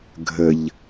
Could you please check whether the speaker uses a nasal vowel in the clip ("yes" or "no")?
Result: no